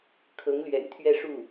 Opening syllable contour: rising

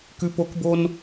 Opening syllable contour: high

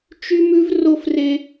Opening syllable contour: high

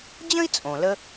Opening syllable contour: high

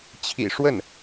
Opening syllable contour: low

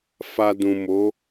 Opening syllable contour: low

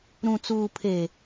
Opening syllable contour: low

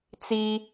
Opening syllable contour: high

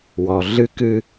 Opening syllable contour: low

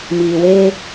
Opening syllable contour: low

